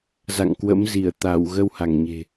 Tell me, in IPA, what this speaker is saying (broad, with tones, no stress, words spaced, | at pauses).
za̰˧˨ŋkwə̰˧˥mzi˧˩ə̯t̪a˧˩w ɣə˧wha˧˩ŋɲe̤˨˩